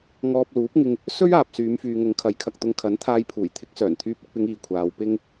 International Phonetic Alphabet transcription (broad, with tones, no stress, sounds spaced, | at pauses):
ŋ ɔː˧ p̚ l uː˨˥ p̚ ŋ ɪ˧ ŋ | s ɵ˥ ɥ aː˨ p̚ s yː˨˧ m f yː˨ ŋ ʊ˨˧ ŋ kʰ ɐ˨˥ j kʰ ɐ˨ k̚ t̪ ʊ˧ ŋ kʰ ɐ˨˥ n t̪ʰ aː˧ j pʰ uː˨˩ j t̪ʰ ɪ˨˥ k̚ s œː˨˩ n t̪ʰ yː˧ p̚ ɪ˨ k̚ p ɪ˨˧ ŋ iː˨ kʷʰ aː˨˧ w p ɪ˧ ŋ